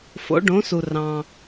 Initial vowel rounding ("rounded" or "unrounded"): rounded